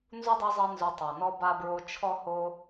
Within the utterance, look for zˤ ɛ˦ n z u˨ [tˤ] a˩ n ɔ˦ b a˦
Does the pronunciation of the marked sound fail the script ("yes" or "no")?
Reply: no